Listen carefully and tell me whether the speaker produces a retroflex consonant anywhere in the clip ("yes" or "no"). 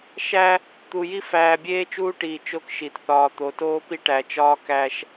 yes